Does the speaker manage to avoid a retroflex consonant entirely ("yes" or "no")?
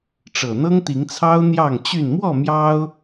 no